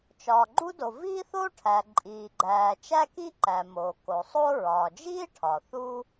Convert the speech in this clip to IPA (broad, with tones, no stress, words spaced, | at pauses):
t͡ʃɒː˩ɡ͡ǃu˥do˩ viː˥θo˥ʈʰæ˩ ǃʼiː˩ɡ͡ǃæː˩ t͡ʃæ˥ki˥ǃæ˩ moː˩ko˩ sˤo˥ ɹɒː˩d͡ʒiː˥ ʈʰɒ˩ θu˥